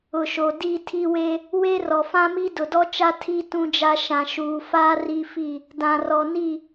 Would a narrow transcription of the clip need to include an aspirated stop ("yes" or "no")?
yes